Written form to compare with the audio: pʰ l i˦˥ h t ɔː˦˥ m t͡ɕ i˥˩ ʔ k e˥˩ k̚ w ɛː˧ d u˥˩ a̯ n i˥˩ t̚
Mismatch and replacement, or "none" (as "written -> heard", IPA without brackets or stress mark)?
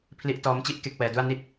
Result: h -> ʔ